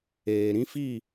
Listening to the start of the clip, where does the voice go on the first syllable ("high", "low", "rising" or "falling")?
low